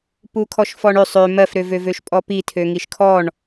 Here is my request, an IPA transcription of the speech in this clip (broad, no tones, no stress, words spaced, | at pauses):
pukʰɔʃfɔɳøsˤ ø mɜfɾøvø vøʃpʼɔpitʰø ŋiʃkʰɔɳ